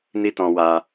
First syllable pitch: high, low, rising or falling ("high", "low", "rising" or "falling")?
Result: high